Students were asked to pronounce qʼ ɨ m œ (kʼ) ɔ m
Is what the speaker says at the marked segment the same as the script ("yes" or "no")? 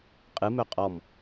no